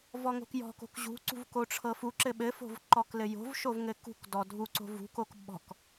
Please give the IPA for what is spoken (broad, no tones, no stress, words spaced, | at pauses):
vɔŋo̤kjɔ̤ko̤k ʑṳǀṳv koʈ͡ʂʰɤfuǁɘ ɓɘfo̤v ǃɔklɘjo̤vʃov ŋɘkṳkdɔ dʱuǀo̤ vṳkok ɓɔ̤k